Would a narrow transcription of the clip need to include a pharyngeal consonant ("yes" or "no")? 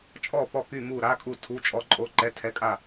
no